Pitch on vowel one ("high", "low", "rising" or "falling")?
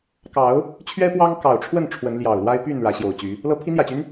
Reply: rising